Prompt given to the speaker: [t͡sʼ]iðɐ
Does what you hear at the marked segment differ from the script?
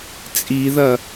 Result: no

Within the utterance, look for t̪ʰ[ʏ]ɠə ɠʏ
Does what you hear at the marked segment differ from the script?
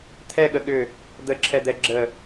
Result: yes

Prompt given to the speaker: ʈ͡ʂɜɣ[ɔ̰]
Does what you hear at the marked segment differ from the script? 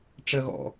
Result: no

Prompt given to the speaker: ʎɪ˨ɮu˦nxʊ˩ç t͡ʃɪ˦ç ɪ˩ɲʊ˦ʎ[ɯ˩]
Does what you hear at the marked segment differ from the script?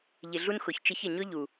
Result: yes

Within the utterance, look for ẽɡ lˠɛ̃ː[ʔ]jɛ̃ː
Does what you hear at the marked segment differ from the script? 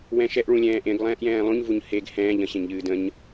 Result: no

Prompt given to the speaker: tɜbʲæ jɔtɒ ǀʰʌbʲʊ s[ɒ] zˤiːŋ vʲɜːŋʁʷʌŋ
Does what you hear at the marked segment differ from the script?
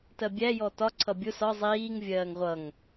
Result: no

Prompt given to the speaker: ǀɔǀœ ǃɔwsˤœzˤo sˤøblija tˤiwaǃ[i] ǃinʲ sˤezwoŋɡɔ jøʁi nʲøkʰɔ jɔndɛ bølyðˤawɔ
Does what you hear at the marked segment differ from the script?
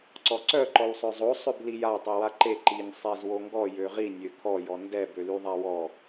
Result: yes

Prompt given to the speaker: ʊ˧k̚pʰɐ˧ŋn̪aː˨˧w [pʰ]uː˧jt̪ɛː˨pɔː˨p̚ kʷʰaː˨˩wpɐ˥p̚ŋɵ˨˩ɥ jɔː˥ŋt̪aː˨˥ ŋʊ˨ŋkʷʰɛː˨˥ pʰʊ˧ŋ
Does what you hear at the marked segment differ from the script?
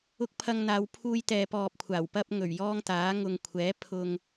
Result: no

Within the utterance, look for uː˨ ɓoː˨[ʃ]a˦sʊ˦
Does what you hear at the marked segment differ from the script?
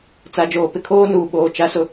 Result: yes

